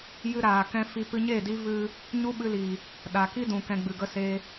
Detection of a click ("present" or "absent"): absent